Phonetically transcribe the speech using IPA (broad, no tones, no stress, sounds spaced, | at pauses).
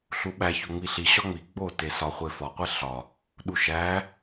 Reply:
ɬ u ɓ æ ç o ŋ͡m i ɬ i ɕ ɒ ŋ͡m i ɡ͡b o t e s ɒ χʷ e f ɒ qʷ e ɬ ɒ | ɗ u ʃ æ